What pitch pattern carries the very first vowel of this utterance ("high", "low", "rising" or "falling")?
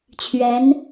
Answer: rising